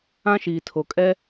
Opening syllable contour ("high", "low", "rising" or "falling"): high